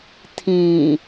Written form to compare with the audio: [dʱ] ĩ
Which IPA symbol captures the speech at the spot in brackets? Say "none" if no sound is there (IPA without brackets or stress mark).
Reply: tʰ